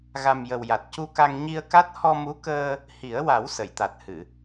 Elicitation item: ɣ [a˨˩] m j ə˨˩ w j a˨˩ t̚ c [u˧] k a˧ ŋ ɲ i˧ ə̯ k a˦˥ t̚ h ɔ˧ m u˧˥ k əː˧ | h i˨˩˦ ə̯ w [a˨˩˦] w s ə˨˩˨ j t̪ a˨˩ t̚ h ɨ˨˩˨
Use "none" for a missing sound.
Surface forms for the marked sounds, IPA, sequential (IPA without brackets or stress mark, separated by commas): a˨˩, u˧, a˨˩˦